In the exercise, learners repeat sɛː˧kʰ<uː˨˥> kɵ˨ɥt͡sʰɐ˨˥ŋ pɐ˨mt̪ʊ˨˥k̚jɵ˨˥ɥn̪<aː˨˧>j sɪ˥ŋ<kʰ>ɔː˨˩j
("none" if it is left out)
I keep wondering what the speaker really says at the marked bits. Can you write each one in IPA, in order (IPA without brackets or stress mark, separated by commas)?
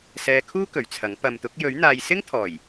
uː˥, aː˧, t̪ʰ